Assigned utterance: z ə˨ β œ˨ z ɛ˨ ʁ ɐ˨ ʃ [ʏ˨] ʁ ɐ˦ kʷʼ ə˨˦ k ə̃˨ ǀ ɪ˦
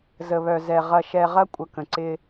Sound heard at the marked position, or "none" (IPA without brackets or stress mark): ɛ˨